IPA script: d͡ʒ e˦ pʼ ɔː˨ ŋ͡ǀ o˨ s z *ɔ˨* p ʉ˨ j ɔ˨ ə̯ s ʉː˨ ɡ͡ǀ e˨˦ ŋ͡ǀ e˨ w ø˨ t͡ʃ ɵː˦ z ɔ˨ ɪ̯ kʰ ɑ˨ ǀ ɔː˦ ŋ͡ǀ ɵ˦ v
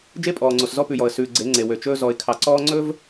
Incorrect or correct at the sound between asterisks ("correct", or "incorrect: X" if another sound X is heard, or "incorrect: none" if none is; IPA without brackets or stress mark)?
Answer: incorrect: ɔ˦